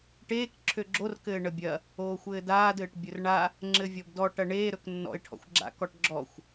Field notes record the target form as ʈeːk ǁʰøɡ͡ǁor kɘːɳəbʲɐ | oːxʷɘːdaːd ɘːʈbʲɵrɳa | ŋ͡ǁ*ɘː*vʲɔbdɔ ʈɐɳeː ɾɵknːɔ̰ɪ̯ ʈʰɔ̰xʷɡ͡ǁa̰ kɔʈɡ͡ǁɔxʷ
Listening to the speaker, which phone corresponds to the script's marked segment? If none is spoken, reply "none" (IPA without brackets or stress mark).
ɘ